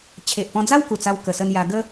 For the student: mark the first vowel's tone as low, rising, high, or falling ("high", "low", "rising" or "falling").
low